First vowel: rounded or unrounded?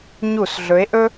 rounded